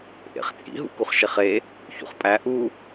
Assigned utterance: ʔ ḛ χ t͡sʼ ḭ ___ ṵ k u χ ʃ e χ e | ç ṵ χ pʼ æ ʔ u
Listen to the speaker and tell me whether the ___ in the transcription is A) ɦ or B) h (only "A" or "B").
A